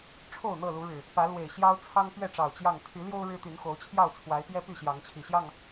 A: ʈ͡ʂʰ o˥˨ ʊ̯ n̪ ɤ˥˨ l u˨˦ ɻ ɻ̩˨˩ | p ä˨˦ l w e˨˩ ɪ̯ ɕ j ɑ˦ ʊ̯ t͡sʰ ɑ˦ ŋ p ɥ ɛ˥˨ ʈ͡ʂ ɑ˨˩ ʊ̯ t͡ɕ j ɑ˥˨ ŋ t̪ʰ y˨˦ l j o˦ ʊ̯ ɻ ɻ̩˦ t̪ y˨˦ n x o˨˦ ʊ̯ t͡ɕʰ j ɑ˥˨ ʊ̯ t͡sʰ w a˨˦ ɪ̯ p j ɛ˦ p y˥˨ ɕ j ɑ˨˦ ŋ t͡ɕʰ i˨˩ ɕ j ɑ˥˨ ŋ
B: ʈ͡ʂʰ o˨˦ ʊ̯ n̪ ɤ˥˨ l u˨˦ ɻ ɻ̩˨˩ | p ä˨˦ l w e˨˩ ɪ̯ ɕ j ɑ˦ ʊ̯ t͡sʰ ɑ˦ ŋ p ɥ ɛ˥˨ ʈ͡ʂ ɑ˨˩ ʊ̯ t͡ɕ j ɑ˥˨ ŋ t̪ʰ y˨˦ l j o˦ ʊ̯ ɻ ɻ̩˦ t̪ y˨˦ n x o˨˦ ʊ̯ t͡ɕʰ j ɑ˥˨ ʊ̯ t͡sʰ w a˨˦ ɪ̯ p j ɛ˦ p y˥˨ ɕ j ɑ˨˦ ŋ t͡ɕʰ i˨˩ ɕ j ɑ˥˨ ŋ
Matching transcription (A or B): A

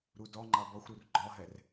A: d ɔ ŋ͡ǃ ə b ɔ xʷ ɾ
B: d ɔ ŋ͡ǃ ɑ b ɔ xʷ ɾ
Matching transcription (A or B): B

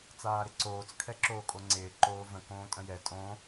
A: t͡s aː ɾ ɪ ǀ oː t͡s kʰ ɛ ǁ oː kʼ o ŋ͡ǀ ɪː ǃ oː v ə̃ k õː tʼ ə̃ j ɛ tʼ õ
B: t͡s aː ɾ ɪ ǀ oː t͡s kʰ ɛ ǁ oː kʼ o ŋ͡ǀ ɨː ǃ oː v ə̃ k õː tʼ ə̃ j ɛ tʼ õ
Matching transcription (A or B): A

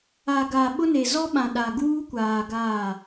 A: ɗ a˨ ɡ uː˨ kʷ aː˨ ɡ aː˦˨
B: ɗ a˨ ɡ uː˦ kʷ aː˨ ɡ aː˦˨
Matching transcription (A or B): B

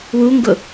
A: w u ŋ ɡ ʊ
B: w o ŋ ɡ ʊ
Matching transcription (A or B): A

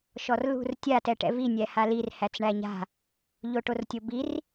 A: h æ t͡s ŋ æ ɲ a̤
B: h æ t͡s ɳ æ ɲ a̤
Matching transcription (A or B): B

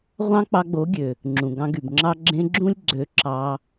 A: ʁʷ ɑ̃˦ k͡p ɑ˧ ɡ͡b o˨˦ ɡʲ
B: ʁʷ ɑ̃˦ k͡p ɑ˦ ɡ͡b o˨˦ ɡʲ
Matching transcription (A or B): A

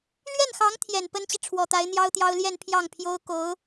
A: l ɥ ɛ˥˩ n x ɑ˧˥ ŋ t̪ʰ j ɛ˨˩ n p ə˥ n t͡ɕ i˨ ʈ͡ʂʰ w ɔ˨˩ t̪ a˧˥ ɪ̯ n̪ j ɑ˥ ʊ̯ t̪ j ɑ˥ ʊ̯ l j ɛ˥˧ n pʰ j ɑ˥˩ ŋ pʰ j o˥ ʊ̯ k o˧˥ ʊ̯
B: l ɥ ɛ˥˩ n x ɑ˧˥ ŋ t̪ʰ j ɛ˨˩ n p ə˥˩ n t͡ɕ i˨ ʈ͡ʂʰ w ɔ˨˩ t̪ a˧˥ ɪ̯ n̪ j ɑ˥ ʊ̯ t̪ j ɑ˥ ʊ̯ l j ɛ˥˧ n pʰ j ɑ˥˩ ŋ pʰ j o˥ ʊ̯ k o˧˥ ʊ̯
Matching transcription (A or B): A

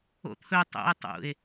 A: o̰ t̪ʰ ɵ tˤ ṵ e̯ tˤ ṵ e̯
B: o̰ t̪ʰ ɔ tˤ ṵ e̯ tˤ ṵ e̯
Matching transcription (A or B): A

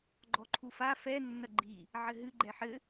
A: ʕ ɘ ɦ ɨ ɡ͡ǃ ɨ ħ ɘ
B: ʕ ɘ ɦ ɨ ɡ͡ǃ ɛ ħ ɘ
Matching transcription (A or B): B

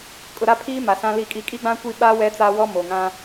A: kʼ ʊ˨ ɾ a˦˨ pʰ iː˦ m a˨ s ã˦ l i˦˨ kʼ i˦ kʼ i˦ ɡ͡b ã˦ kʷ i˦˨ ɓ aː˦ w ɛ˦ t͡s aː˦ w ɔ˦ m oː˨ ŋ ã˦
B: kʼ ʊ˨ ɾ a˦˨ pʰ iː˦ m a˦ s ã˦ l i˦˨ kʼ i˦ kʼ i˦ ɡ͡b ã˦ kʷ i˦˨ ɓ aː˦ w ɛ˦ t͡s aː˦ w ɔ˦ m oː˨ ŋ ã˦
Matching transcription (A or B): A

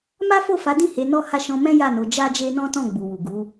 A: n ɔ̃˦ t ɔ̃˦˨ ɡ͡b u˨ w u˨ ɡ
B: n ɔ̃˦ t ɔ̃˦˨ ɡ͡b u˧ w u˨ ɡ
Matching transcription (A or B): A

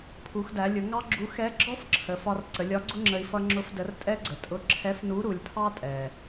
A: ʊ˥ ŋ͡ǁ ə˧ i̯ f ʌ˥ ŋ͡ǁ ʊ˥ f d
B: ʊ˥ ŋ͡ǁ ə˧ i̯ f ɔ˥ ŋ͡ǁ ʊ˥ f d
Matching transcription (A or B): A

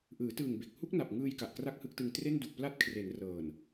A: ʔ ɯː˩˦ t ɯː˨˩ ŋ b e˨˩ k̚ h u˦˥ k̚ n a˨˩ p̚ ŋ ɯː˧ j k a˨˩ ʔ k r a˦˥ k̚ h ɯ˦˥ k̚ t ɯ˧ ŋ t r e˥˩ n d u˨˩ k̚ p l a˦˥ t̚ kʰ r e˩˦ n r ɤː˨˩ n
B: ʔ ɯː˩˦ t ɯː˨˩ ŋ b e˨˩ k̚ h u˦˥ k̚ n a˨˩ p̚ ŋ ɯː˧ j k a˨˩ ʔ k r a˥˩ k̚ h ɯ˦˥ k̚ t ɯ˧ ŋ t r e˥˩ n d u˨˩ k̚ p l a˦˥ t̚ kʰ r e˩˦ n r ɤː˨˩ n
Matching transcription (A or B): B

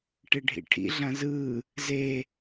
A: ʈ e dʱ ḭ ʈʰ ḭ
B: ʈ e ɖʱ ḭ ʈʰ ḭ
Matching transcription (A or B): B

